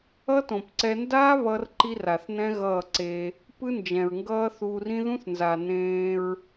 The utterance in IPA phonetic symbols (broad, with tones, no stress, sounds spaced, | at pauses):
ʌ˦ t õ˨ p ǀ ɛ˧ n d aː˦ β ʌ˦ r ǃ i˦ r a˨ θ n ɛ̃˦ ɣ ʌː˦˨ ǀ e˧ | p ɯ˦ n d͡ʒ ɛ̃˨ ɹ ŋ ɡ ʌː˦ θ uː˧ r ĩ˦ ð ũ˦ θ n z a˨ n ẽː˧ ɹ